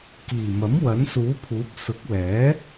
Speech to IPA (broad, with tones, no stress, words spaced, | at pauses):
kiː˨˩ mɐ˨˥m wɐ˨˥nsuː˨˥pʰuː˨˥p̚ sʊ˨˥k̚wɛː˨˥